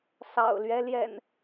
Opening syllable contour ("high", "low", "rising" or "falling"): low